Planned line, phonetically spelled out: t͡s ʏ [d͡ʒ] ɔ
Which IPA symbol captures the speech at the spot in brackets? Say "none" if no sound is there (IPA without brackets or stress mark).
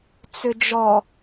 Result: d͡ʒ